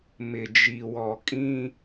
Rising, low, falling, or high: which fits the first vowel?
low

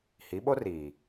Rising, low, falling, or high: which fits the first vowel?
rising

